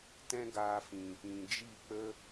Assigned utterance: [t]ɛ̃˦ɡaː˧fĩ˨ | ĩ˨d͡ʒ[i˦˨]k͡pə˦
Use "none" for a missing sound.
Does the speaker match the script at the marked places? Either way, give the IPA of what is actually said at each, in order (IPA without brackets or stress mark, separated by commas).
t, i˦˨